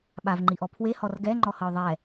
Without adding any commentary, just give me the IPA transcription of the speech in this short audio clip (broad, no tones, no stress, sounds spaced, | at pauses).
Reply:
ɓ a v ŋ͡ǃ i ʔ ɔ pʰ w e h ɔ r ɡ ɛ ŋ͡ǃ ɔ h ɤ ʊ̯ ðˤ ɛ